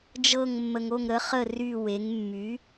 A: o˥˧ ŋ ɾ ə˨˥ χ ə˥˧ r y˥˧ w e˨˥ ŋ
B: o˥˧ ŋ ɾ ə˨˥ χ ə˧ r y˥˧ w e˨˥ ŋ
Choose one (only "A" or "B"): A